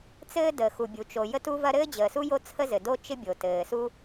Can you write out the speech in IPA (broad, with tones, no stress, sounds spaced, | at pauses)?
t͡s ɘː˥ d əː˩ x u˩ bʲ u˩ t͡ʃ o˩ j ə˥ t u˥ v ɐ˥ ɾ ɘː˥ d͡ʑ əː˩ s u˥ j o˥ t͡sʰ ə˥ z ɘ˩ d o˥ t͡ʃ ɪ˥ bʲ o˩ t ɘː˩ s u˥